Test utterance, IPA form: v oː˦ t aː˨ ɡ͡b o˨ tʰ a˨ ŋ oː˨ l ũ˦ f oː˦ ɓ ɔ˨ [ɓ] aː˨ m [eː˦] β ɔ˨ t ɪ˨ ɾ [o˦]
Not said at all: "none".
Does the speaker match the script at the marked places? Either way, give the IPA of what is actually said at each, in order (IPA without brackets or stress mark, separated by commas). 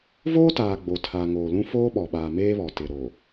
ɓ, eː˦, o˨